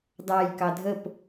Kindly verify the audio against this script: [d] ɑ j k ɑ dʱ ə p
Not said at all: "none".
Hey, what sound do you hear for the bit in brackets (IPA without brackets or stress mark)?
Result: d